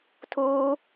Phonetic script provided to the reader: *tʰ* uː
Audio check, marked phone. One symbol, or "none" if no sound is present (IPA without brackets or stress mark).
tʰ